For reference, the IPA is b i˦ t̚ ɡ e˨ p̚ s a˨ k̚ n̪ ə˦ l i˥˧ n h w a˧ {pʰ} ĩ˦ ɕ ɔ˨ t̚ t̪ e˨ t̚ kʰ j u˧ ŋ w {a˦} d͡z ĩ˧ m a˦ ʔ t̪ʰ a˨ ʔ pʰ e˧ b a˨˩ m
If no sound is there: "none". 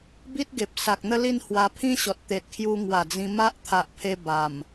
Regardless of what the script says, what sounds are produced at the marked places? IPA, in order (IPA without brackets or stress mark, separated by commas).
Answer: pʰ, a˨˩